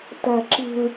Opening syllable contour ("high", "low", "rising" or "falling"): low